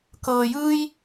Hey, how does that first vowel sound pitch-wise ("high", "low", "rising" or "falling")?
low